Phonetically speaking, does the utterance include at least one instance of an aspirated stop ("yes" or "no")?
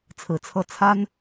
yes